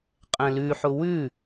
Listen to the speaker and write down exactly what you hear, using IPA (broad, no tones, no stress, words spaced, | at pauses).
qʼɛ̃lʉħʊ wʉ